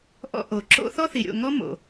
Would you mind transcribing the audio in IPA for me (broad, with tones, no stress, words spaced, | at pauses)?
ʔɔ̰˧ ʔo˨ǁo̰˦ θɔ˦θi˨ɾʲo̰˦˨ ŋɔ˦mo̰˨